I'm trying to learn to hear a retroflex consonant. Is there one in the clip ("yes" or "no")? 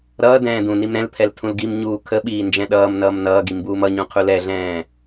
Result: no